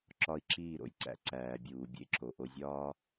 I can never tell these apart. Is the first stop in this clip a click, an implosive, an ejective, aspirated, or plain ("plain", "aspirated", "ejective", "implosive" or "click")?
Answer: click